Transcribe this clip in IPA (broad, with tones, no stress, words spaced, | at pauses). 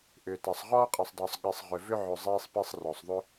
ʔʏː˨ta˨sˤ ʁɔː˥qʼe˨sˤdˤʏː˨sˤ ɠi˨sˤ ʁʏ˨vʏ˥ʕʏ˨ zˤeː˥sˤpi˦sˤrɔ˩sˤðˤʏ˥